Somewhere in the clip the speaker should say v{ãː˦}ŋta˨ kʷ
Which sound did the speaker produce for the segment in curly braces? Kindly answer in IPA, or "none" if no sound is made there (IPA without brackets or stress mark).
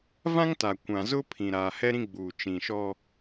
ã˦